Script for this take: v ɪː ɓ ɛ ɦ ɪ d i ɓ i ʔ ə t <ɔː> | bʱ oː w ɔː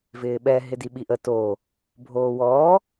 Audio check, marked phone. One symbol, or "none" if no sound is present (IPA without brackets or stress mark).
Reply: oː